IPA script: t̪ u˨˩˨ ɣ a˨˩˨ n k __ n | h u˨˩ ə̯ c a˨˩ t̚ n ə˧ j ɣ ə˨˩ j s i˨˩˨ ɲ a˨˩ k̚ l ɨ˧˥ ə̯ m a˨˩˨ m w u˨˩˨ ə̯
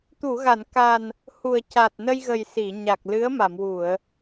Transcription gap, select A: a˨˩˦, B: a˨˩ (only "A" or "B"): B